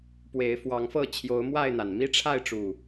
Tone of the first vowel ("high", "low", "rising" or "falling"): rising